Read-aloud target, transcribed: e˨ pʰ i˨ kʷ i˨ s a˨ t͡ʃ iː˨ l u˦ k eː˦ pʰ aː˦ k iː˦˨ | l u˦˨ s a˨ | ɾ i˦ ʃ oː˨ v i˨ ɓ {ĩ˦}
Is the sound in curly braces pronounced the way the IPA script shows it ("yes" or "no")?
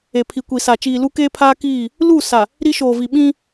yes